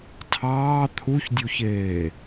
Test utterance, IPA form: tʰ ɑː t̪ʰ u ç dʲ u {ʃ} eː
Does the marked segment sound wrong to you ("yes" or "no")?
yes